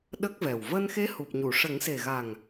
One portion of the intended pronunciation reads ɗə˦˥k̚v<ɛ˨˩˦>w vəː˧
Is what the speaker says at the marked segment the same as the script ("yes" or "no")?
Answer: no